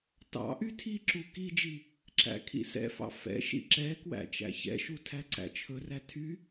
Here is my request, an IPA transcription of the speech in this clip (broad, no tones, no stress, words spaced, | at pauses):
tɑ̰ ʔytʰiǁu kid͡ʒi | ǁæ̰kʰḭsɛ̰fɑ̰ fɛ̰ ʃḭǁɛkwæ̰ t͡ʃæ̰çɛ̰ʃu tʰæǀæ̰t͡ʃʰɵræ tʰy